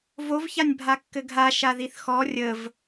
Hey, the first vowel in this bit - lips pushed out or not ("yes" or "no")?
yes